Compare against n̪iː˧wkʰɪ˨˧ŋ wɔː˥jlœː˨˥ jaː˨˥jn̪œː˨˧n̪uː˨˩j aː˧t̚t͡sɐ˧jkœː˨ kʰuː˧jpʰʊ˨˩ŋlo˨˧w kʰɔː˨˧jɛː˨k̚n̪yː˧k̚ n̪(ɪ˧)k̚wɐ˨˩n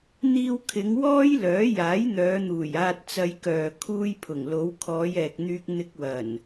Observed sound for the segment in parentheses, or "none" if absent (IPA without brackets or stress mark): ɪ˧